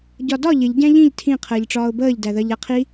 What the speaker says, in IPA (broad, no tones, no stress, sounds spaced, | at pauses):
ɟ ɒ d ɒ ʎ ɪ ʎ ɟ æ̃ ʎ ĩ ʎ tʰ ĩ qʰ əː ʎ ʈ͡ʂ ɒː ʊ̯ b əː ʎ d æ ð ɜ ʎ æ qʰ i